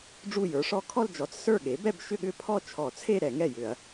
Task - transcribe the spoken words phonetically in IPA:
ɖ͡ʐ u˥˩ j ə˞˩˥ ʂ ɔ˥˧ kʰ ɔ˥˧ l d͡ʒ ɔ˩˥ t͡s s ə˞˥˩ ɠ e˩˥ b ɛ˥˧ b ʃ ʏ˥˧ ɠ ʏ˥˧ pʰ ɔ˥˧ t͡ʃʰ ɔ˧˩˧ t͡sʰ e˥˧ ɾ ɛ˧˩˧ ŋ ɛ˥˩ j ʏ˧˩˧ ɐ̯

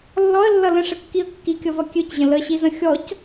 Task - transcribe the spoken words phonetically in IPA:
lː ɔ ə̯ lː ʌ l ə̃ ʂ ə kː i ə̯ kː i kʲ ʌ v ʌ kʲ ø c ʑ ə̃ l ə ɕ i z ə̃ xʲ ɔ c

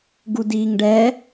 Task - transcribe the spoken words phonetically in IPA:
ɡ u d iː ŋ ɖ ɛ

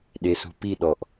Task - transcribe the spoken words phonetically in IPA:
ɗ e s ṳ p i ɗ ɔ ʔ

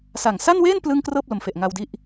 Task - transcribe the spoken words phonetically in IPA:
s a˨˩ ŋ s a˥˩ n w eː˥˩ n p l ɯ˥˩ ŋ k r ɤː˥˩ p̚ l o˩˦ m f e˨˩ ʔ ŋ a˧ w d i˦˥ ʔ

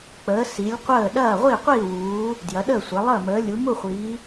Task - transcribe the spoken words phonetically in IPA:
k͡p əː˨˦ s i˨˦ lʲ qʷ əː˥˨ ɗ ɐː˥˨ ʁʷ i˥˨ qʷ iː˥˨ w uː˨˦ | d j ɐ˨˦ ɗ əː˥˨ sʷ ɐ˨˦ lˠ əː˥˨ m əː˨˦ lʲ u˨˦ m u˥˨ χʷ iː˨˦

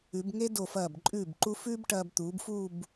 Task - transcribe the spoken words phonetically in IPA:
ʉ˩˧ b ŋ e˥ d o˧˩ f ɐː˧˩ b ǃʼ ʉː˧˩ b ǃ u˧ f ʉː˥ b ʈ ɐː˧ b t̪ uː˩˧ b f uː˥˧ b

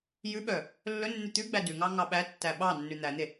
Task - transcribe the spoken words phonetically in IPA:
j ʉ ɓ œ | lː ɵ nː ʉ t̪ ʉ ɡ͡b æ d ʉ ŋ ɑ ŋ ɑ ɓ æ tː æ ɓ ɑ nː ʉ n̪ æ n̪ e

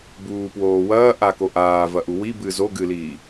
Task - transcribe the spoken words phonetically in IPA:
b uː p w oː w ɐː ʔ a k o ʔ aː v ɐ ʔ u w i b ɨ z o ɡ ɨ l iː

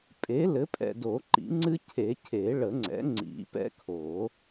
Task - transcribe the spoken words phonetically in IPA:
pʼ e˩˥ l ɘ˩˥ pʼ ɛ̰˨ d o˨˩˦ ǃ ḭ˨˩˦ ŋ͡ǀ ɨ˦ cʰ e˨˩˦ cʰ e˨˩˦ ɭ ə˨˩˦ ŋ͡ǀ ɛ̰˩˥ ŋ͡ǀ ḭ˨˩˦ p ɛ̰˦ kʰ o˨˩˦

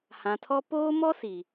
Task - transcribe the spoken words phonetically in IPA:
h ã˨ tʰ ɔ˦ p oː˦ m ɔ˦ s i˨

